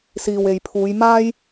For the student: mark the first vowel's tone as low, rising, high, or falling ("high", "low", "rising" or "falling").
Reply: low